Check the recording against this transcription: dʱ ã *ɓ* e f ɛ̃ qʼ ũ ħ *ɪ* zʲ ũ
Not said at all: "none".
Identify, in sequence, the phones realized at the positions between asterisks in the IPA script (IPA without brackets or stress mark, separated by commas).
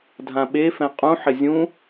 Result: ɓ, ɪ